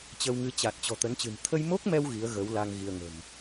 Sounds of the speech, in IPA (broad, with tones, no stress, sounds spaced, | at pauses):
t͡ɕ ə˧ w ŋ ɨ˨˦ t͡ɕ a˨˩ t̚ t͡ɕ ɔ̤˨˩ t̪ ə˨˦ n t͡ɕ ɨ̤˨˩ n t̪ʰ ə˧ j m o˦˥ k̚ m ɛ˧ w ɣ i˨˦ ə̯ ɣ ə˨˦ w l a˧ ŋ ɣ i˧ ə̯ ŋ ə̤˨˩ m